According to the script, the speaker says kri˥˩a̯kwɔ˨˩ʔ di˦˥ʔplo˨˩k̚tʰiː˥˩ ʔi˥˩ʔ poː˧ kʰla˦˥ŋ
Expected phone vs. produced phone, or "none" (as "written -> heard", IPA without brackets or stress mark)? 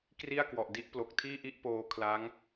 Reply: none